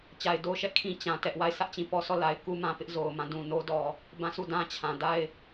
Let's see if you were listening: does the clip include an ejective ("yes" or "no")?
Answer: no